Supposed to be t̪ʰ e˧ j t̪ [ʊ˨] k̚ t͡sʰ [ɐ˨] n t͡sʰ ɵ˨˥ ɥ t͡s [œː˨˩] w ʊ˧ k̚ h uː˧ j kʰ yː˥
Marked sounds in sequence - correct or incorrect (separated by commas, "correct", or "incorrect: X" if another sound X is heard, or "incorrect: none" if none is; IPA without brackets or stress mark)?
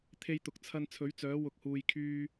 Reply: correct, incorrect: ɐ˧, incorrect: œː˨˥